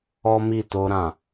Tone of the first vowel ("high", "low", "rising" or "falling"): high